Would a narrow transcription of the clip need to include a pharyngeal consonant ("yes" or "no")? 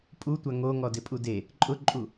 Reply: no